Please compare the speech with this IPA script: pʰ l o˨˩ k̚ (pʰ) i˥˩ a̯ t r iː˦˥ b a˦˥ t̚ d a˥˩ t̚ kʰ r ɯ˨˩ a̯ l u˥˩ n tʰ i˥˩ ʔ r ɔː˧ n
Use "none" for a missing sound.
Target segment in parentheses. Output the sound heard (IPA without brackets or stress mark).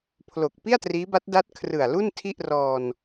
p